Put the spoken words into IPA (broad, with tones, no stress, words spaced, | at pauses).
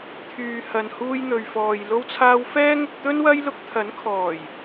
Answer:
t̪ʰyː˨hɐ˨n huː˧jn̪ɵ˨ɥfɔː˨j lo˧wt͡sʰaː˧w fɛː˥ŋʊ˧k̚ t̪ɵ˥nwɐ˥j lʊ˧k̚t̪ʰɐ˨˥nkʰɔː˨˩j